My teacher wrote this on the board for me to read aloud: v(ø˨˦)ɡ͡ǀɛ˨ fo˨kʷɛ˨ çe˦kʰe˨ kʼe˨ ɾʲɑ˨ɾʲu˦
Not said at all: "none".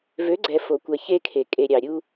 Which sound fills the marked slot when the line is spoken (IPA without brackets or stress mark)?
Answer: ø˨˦